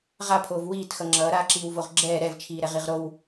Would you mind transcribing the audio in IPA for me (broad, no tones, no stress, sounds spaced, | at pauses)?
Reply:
ʁ a pʰ oː v w iː t x ʌ ŋ͡ǁ ʌː ɾ aː ǁ iː w v o ʁ ɡ͡ǁ ɛː ɾ ɛ v t͡ʃʰ iː ɾ ɛ ʁ i ʁ ɾ o w